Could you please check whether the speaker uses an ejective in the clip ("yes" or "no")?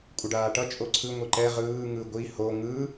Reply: yes